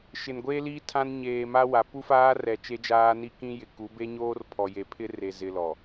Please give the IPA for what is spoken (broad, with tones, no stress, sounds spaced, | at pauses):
ʃ ɪ˨ n ɡʷ eː˦ l iː˦ tʰ ã˦ n ɲ eː˨ m a˦ w a˨ p u˦ f aː˦ r ɛ˨ t͡ʃ e˦ d͡ʒ aː˦ n i˦ k ĩ˦ j ɪ˨ k u˨˦ b e˦ ɲ oː˦ r pʰ ɔ˨ j e˨ pʰ ɪ˦ r e˨ z ɪ˨ l ɔ˨